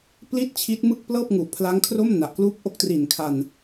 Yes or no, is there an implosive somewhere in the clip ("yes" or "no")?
no